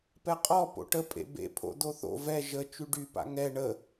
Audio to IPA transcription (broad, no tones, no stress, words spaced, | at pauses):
pɛqʼɔ po̰ʈəpʼḛ bḛpʰo̰ doθo̰ vɛ ʒə t͡ʃyɖy pa̰ŋɛ ɳə